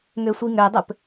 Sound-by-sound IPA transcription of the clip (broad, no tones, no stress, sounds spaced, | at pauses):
ŋ ø sʷ i ŋ ø dˤ ɘ p